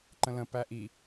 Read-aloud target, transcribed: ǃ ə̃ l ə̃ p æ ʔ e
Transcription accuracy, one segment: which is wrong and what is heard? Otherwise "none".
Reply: e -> i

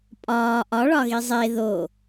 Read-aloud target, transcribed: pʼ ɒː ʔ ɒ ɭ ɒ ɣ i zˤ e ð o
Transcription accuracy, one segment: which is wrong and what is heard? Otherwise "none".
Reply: none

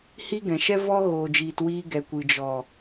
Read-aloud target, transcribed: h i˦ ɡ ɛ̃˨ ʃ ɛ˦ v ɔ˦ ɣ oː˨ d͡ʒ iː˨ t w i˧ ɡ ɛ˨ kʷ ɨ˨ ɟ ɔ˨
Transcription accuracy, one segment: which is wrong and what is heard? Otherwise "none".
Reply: ɟ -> d͡ʒ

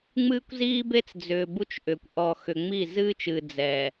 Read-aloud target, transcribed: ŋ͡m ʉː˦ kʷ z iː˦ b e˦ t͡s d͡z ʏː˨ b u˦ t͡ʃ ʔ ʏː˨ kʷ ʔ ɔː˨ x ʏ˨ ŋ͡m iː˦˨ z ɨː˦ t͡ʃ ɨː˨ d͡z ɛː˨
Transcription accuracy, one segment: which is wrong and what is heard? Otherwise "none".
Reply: ʉː˦ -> ɨː˦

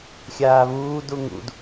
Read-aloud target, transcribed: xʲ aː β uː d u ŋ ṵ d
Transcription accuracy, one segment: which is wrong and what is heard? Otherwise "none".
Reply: none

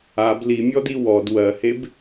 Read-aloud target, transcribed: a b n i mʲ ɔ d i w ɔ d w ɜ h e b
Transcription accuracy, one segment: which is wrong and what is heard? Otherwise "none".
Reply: n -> l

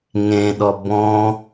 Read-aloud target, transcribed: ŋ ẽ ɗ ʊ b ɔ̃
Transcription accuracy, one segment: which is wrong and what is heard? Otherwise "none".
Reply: ʊ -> ɔ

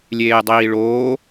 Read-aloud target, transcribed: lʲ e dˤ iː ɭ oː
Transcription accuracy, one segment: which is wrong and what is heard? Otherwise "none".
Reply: e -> eː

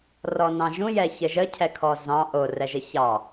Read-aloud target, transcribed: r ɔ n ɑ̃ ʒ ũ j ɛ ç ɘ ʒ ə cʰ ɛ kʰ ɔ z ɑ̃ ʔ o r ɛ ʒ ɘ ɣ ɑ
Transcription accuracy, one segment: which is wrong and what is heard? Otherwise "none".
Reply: ɣ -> ç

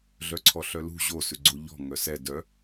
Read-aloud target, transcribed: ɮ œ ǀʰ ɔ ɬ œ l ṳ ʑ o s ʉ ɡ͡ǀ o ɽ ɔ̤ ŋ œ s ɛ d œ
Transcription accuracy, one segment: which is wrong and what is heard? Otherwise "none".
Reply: ɽ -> ʎ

